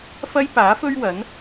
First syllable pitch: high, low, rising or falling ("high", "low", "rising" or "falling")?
high